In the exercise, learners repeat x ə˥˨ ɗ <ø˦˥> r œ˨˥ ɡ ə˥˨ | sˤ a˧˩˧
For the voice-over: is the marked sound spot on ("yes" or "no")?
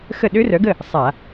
yes